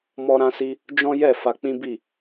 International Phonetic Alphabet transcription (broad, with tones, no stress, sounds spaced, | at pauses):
m ɔ˧ ɾ ã˧ s i˧ | d͡ʒ ɔ̃˦ j ɛ˦˨ f a˧ k͡p ĩ˦ b i˦˨